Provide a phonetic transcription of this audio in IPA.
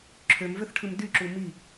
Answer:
ǁʰ ø m v ø θ ʈʰ ɯ m d y ǁ u m i

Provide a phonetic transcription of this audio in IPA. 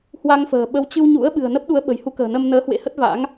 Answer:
h w a˧ ŋ f ə̤ː˨˩ ɓ ə˨˦ w t͡ɕ ɨ˧ w ɲ ṵ˧˥ ə̯ ɓ ɨ̤˨˩ ə̯ n ə˦˥ p̚ ɗ u˨˦ ə̯ ɓ ə̤˨˩ j h u˨˦ k ə̤ː˨˩ n ə˧ m n əː˨˦ h w ḛ˧˥ h ə˦˥ t̚ v a̰˧˥ ŋ

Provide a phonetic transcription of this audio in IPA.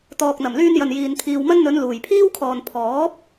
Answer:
t̪ ɔː˨ k̚ n̪ ɐ˨˩ m l yː˧ n j ɐ˨ n j iː˨ n t̪ʰ iː˨ w m ɐ˥ n n̪ ɵ˨˧ n l uː˨˩ j pʰ iː˥ w kʰ ɔː˨ n pʰ ɔː˨˥ p̚

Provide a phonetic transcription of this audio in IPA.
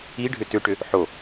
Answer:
i ɖʱ ʏ t ʏ ʈ ʏ | ħ o

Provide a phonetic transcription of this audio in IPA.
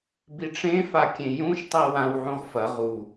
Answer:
b i ʈ͡ʂ ẽ f a kʲ ẽ j ũ ʃ tˤ i w ã w ʕ ũ ʁ f ɐ ʁ u

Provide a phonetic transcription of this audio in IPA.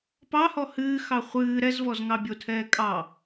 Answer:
p ɑ h ɔ h ɨː x ɑ χʷ ɨː ɾ ɛ z v ɔ z ŋ ɑ bʲ o tʰ ɛː kʼ ɑ

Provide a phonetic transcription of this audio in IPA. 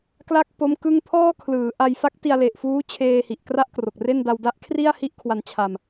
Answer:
k l a˥˩ k̚ p o˦˥ m k ɯ˥˩ ŋ pʰ ɔː˥˩ kʰ l ɯː˩˦ ʔ a˧ j f a˦˥ k̚ t i˧ a̯ l e˨˩ ʔ f uː˦˥ t͡ɕʰ eː˧ h i˨˩ ʔ k r a˥˩ ʔ k r o˨˩ k̚ r e˥˩ n d a˧ w d a˦˥ ʔ kʰ r i˥˩ a̯ h i˥˩ ʔ kʰ w a˧ n t͡ɕʰ a˧ m

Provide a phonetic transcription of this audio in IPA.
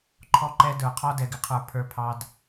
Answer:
ǃʰ ɔ˦ ǃ ɛ˦ d ə˞˧ qʰ ɔ˦ d ɛ˧ ɡ ɪ˧ qʰ ə˞˧ pʰ ə˞˧ pʰ ɑ˧ d

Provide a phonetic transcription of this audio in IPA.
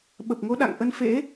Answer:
ɓ ə˨˩ p̚ ŋ o˨˦ ɗ a̰˧˨ ŋ ʔ ə˧ n f ḛ˧˥

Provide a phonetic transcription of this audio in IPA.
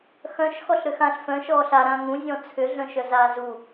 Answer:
x œ̃ ʃ x ɔ ɬ ɾ ʏ x ã ɬ f œ̃ ʃ ɔː ɬ a ɾ ã ŋ ũ zʲ ɔ̃ t͡sʰ ʏ ɮ œ̃ ʃ œ z aː z u

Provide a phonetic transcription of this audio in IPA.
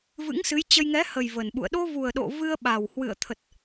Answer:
v ɨ̰˧˥ ŋ s ɨ˨˦ j t͡ɕ ə˧ j ŋ ɛ˨˦ h ə˨˩ j v ə˨˩ n ɓ ṵ˧˨ ə̯ ɗ o˧ v u˨˩ ə̯ ɗ o̰˧˨ v ɨ˧ ə̯ ɓ a˨˩ w h w ɨ̰˧˨ ə̯ t̪ʰ ə˨˩ t̚

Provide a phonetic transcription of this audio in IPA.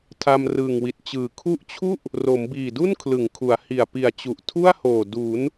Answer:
tʰ a˧ m r ɯː˨˩ ŋ w i˨˩ t̚ t͡ɕ ɯː˨˩ kʰ u˦˥ ʔ t͡ɕʰ u˥˩ ʔ | r o˩˦ m b iː˨˩ d u˥˩ n kʰ l ɯ˩˦ ŋ kʰ u˩˦ a̯ h i˨˩ a̯ p i˨˩ a̯ t͡ɕ u˨˩ ʔ tʰ u˥˩ a̯ h oː˨˩ d u˩˦ n

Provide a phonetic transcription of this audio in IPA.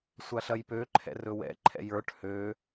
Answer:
sʷ a ɬ ɐ j p ø ǃʰ ɛ̰ r ɵ w ɛ̰ ǃʰ ɛ̰ j ə˞ ʈ h ø

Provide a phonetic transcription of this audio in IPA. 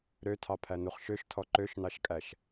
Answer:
ɾ ø tʰ ɑ pʰ æ n u χ ʃ ø ʃ tʰ ɔ ǃ ø ʃ n ɑ ʃ kʼ æ ʃ

